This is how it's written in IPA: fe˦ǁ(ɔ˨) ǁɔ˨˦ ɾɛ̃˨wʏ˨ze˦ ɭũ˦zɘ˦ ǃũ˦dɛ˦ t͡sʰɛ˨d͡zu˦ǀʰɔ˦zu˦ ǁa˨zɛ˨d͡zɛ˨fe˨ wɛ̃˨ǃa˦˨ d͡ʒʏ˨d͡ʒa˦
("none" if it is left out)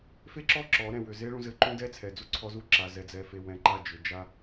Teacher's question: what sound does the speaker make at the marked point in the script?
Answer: ɔ˦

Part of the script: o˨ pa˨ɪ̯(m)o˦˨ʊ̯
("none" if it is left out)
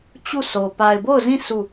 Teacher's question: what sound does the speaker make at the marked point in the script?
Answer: b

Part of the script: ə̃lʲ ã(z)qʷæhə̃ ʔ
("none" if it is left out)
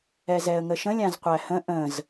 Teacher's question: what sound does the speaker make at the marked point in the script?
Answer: z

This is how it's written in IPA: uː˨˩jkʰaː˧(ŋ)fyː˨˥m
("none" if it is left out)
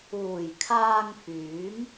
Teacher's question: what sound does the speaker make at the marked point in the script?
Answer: ŋ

